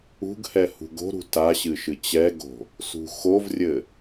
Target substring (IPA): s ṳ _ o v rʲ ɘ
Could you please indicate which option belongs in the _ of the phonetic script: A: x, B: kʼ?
A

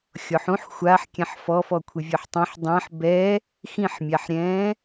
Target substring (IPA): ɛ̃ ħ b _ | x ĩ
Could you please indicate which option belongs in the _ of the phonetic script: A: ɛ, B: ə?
A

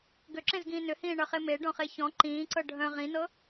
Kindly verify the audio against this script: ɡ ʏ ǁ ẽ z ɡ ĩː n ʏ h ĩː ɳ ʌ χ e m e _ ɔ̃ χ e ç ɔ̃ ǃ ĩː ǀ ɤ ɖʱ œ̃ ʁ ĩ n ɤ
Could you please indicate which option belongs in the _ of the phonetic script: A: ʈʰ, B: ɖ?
B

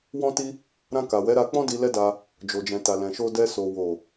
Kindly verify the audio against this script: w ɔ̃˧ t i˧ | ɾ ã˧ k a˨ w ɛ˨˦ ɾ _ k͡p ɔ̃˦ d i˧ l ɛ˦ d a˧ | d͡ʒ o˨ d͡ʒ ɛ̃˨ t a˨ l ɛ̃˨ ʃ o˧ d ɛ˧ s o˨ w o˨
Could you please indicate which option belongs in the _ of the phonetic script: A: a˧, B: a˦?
A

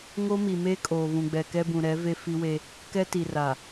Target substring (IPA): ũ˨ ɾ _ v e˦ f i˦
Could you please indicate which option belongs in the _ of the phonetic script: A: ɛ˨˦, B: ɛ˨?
A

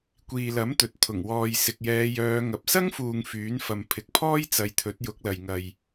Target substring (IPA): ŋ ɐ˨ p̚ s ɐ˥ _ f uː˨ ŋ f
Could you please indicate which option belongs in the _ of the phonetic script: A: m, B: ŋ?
B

